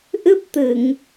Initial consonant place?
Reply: glottal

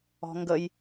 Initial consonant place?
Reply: velar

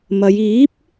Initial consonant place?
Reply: labial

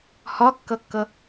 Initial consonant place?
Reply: glottal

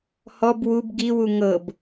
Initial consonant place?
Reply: glottal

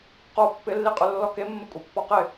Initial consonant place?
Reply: uvular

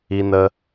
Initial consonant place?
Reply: alveolar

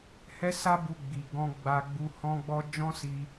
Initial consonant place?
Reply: glottal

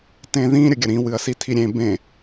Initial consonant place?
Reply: alveolar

